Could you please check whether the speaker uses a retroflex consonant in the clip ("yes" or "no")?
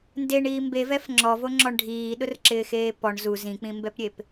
yes